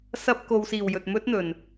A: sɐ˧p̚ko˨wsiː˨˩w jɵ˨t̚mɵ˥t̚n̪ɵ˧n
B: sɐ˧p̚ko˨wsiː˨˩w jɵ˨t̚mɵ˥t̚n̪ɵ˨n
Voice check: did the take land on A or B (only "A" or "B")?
B